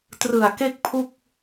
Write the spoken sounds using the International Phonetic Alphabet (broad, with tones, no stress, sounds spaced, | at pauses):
t r ɯ˨˩ a̯ k e˥˩ k̚ pʰ u˥˩ k̚